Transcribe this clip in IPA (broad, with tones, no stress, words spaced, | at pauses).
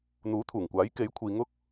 n̪uː˨˥t̪ʰuː˨˩ŋkʷaː˨˥j ke˨˥jkʷʰiː˨ŋʊ˥k̚